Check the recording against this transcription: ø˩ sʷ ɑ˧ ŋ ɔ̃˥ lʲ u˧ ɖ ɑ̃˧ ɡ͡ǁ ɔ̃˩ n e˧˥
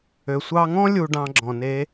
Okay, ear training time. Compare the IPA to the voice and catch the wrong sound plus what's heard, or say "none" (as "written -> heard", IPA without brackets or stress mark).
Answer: none